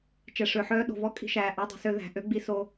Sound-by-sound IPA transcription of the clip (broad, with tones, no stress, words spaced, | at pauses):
t͡ʃɛ˨ʂø˨ħœː˦ ɗo̤˨vɔ˦ kʼi̤˦ʃæː˨ ʔɑ˦dˤi̤˨sø˦ ðæ̤˨ ʔø˦ ɡ͡bi˦so˦